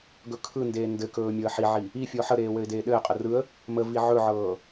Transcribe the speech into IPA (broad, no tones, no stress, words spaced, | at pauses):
ɡɵkʰɯndeː ndɘkɵː mʲɔə̯ħiʕi | ifʲɔ ħəɾeː wɘɪ̯deːɗɘːqʼə rɯə̯ | məvi ʕɵʕɤː